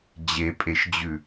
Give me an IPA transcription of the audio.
d͡ʑepʼeʃd͡ʑʉ

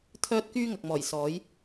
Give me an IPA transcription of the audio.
t̪ʰœː˥t̚kyː˥ ŋɐ˨k̚mɔː˨˩j sɔː˨˥j

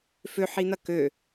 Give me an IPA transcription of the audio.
føħin̪ɐ kø

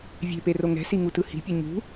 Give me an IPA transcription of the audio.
vʲe̤pero ŋɛ̤siŋutɯ hi̤pʲʌ ɲṳ

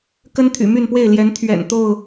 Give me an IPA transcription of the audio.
kə˦n t̪ʰy̰˨˩ my˥˨npwe˥˨ɪ̯ ljɛ˨˦n t̪ʰɥɛ̰˨˩n t̪o˥˨ʊ̯

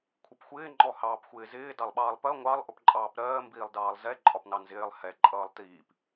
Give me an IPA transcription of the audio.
kʷʰɪpxʷɪː ŋ͡ǃɔhɑːpxʷɪːzɪː dɑlˠɓɑːlˠpɜ ŋʷɑlˠ ʔʊpǃʼɑːpɾɜː mbiːlˠdɑːlˠzɛ ǃʼɒpnɑnzɪːlˠ hɛ ǃʼʌːlˠtiːp

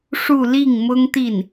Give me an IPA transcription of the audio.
ʂu˥˧ li˥˩ŋ mʊ˥ŋt̪i˥˩n

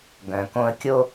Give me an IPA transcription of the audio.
ɡœ̃˨kõ˦ə̯kʲo˦

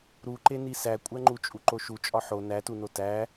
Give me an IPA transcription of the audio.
ɾuǃeni sækʷʼæŋ͡ǃu t͡ʃʼuǃoʃu t͡ʃʼɒħo nætuno tæ

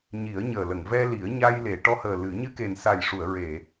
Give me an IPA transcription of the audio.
ɲi˨˩˦ə̯ɲəː˨˩lə˨˩˨ŋ vɛ˧li˨˩˦ə̯ ɲa˧j le˨˩˨ʈɔ˧˥həː˨˩ lɨ˨˩˦ ɲɨ˧ke˨˩nsa˨˩jʂu˨˩˨ə̯ ɹe˨˩˨

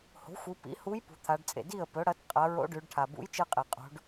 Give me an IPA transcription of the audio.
ho̤˩˥xʷɨ˩˧ pḭ˩˥hu˧˥j pṳ˩˧t̪ʰa˩˧ɖt͡sʼḛ˩ di˥˩ə̯ pɵ˩˥ɽɐ˩˥t qʼɐ˩˧ ɹo̰˧˥ɖʉ˩˧ɖʈʰa˩ bṵ˧˥jt͡ʃɨ˧qʼe˩ qʼo̤˩˧ɖ

